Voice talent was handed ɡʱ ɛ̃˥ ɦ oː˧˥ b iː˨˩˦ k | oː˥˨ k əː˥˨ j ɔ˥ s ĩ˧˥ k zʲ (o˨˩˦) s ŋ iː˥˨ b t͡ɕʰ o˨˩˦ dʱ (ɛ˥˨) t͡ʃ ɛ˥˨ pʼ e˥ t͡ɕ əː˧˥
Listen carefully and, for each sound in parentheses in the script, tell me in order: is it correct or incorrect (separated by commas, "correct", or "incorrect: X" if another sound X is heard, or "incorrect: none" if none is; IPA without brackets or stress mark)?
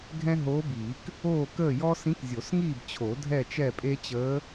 correct, correct